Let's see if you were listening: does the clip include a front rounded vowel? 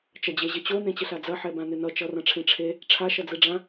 yes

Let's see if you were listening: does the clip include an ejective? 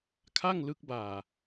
no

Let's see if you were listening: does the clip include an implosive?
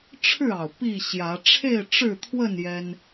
no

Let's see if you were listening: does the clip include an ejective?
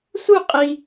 yes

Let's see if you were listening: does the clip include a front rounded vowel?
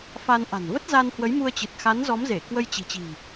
no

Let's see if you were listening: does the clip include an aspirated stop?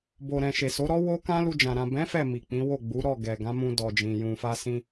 no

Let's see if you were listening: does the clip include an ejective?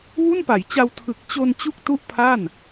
no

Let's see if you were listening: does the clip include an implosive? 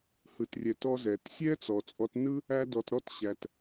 no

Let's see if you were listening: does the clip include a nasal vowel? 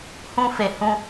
yes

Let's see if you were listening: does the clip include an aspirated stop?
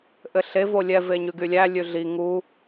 no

